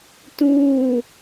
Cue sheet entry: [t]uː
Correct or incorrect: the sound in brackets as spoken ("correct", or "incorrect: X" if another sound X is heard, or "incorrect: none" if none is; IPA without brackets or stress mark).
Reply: correct